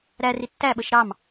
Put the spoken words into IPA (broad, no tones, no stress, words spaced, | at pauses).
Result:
ɾæri tːæɓəʃ ɾɑm